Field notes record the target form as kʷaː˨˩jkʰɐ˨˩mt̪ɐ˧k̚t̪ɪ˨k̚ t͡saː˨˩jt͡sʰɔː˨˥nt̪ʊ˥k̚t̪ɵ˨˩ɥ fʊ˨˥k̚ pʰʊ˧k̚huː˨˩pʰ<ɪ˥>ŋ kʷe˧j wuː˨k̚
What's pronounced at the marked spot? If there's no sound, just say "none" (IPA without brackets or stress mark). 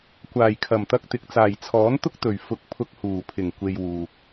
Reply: ɪ˨˩